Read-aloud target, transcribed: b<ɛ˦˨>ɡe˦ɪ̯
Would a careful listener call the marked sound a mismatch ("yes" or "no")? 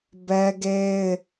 yes